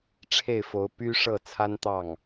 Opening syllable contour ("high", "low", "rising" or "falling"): falling